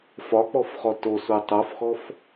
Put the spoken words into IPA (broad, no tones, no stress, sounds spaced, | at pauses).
f ɒ k͡p ɔ f χ ɔ t o s u tˤ o f x ɔ f